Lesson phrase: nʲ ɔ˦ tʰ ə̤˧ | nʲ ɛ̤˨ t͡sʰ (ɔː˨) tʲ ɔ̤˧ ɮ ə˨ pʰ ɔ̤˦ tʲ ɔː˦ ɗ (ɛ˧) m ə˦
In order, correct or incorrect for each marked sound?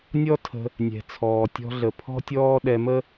correct, correct

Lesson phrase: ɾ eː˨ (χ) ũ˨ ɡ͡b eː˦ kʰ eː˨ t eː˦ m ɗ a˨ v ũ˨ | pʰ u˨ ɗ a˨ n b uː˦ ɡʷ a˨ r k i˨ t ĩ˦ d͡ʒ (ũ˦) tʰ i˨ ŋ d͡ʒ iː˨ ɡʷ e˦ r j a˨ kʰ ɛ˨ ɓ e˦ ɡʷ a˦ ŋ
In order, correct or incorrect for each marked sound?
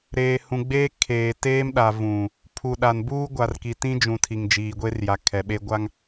incorrect, incorrect

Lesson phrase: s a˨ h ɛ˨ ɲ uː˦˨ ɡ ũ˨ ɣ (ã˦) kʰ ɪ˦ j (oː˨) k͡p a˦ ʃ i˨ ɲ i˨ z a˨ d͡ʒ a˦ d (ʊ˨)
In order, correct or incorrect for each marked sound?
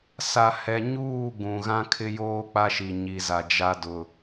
correct, incorrect, correct

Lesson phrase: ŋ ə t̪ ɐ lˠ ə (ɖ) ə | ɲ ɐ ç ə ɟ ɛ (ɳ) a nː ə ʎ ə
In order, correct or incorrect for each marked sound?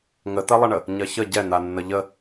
incorrect, incorrect

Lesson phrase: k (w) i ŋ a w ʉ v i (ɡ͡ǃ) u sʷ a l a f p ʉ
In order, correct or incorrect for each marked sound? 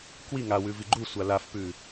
correct, correct

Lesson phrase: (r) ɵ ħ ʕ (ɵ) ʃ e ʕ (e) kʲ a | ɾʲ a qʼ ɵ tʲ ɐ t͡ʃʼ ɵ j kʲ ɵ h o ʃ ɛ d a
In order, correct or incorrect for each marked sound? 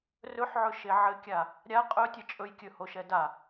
correct, correct, incorrect

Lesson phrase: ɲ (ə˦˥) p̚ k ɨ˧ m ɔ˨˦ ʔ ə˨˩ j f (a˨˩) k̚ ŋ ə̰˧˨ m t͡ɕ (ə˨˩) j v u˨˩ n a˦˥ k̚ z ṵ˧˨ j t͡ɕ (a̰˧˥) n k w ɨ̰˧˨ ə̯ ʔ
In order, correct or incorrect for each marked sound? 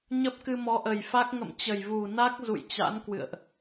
correct, incorrect, correct, correct

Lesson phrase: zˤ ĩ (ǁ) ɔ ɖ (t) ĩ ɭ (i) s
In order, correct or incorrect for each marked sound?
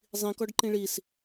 incorrect, incorrect, correct

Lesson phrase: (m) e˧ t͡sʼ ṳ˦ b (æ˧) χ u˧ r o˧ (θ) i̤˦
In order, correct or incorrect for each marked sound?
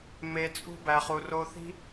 correct, correct, correct

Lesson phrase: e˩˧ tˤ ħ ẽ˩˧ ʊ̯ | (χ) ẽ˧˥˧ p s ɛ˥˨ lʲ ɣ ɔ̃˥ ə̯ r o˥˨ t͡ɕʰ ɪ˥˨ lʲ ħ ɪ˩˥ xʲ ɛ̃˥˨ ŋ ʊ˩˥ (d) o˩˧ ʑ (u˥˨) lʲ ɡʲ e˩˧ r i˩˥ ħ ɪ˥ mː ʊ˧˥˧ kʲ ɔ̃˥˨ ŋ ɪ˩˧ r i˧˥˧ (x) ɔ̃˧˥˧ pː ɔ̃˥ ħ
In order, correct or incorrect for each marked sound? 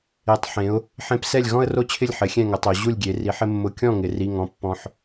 incorrect, incorrect, correct, incorrect

